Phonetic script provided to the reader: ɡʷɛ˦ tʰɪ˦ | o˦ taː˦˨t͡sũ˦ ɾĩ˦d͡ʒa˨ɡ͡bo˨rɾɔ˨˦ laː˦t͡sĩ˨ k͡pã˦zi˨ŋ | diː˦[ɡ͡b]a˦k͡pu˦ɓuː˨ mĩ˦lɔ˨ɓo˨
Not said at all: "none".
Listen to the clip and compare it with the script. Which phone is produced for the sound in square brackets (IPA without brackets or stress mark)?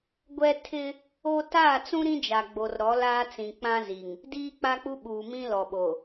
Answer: k͡p